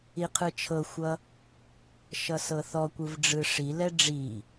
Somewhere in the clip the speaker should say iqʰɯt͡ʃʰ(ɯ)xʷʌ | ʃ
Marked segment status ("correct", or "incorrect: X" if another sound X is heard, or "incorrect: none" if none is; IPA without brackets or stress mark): incorrect: ɤ